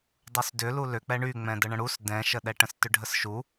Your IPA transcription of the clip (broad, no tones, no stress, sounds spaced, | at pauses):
dˤ u s d ʏ l u l ʏ k͡p ɛ ɳ y ŋ͡m ɛ̃ d ə ɳ ə̃ ɽ u s d ɛ̃ ʃ ə ɗ ɛ ʈ ə̃ s t ʏ ɖʱ ə s ʃ u